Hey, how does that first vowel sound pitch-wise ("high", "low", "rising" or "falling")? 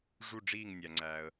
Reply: falling